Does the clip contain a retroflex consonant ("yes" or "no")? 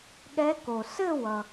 no